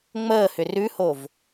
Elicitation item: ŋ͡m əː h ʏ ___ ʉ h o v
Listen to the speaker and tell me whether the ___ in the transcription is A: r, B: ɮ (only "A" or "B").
A